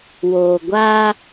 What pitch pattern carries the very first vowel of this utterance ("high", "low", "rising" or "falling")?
low